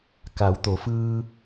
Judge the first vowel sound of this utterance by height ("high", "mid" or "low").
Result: low